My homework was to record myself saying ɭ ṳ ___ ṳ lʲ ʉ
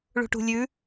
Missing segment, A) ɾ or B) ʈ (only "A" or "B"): B